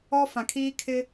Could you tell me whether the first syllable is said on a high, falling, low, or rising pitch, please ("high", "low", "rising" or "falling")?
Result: high